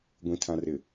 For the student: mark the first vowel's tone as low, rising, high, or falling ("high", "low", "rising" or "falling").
low